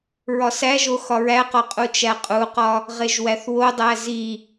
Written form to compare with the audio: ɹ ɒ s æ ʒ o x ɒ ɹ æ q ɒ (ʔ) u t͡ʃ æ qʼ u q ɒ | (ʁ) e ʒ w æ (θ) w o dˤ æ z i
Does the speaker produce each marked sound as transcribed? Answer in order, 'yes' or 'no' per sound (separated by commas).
no, yes, yes